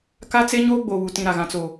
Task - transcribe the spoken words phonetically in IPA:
ka˦t͡se˦ɲoː˦ ɡ͡bo˨βu˨tĩ˨ ɾa˨ɣã˨ t͡so˨

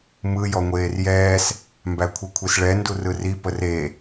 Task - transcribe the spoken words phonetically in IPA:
mɯ jɔŋʷeːrjɛːs | mbækʷʰikʷʰisɭɛ ndurɯri pəre

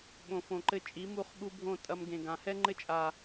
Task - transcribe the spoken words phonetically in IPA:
ɓõ˨fõ˨ǃɘ˦ t͡ʃʼi˨˦mu˦˨χɓu˦bʱõ˦˨ tʼɐ˦mɡẽ˨ɡã˨ hɛ˦ŋ͡ǃɘ˦t͡ʃʼa˨

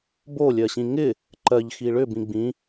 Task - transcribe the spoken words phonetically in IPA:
bolʲɜɕĩ ŋɪ | ǃɜʎxi ɭʏbĩ ɡ͡bĩ

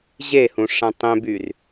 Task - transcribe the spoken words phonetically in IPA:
ʑehũ ʂãtˤẽbyr

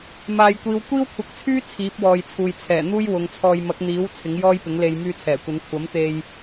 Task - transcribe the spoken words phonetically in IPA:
maː˨jkʷiː˨˧w kʷiː˥wkʷʰɐ˨˥k̚t͡sʰyː˥ t͡sʰiː˨˥p̚wɔː˨jt͡sʰuː˨j t͡sʰɛː˨˩n̪uː˥jwʊ˨˧ŋt͡sʰɔː˧j mɐ˨˥k̚n̪iː˨˥w t͡sʰɪ˨˥ŋjɔː˥jpɪ˨˥ŋle˧j myː˧t͡sʰɛː˨˩kʷɐ˨˧n kʷʰɐ˨˥m t̪e˧j

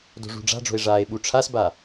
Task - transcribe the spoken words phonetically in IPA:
do̤ʐṳɖ͡ʐa̤ɖ͡ʐo̤e̯ ʐaːe̯ɓuʈ͡ʂʰasba

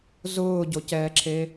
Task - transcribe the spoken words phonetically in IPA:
zʊːɟocɛːǁʰe

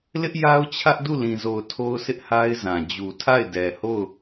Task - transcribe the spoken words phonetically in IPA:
lɪ˦ʔja˦ʊ̯t͡ɕʰä˦ʔ du˦˨lĩ˨zo˨ʊ̯ tʰo˦ʊ̯sʰɪ˦ʔha˦ɪ̯zã˨ d͡ʑu˨tʰa˦˨ɪ̯dɛ˨ ho˦˨ʊ̯

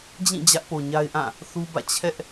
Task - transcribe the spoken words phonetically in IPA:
d͡ʑĩ˦˨ d͡ʑä˦ʔpo˨ɲa˦ɪ̯ʔã˦˨ | θu˦bä̰˦˨ t͡ɕʰɛ˦ʔ

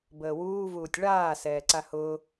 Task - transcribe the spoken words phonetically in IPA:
bəːwuː vuːtʲɭaː sɛːǀahʊː

